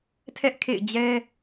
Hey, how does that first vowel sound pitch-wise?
high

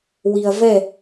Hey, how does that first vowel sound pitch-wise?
low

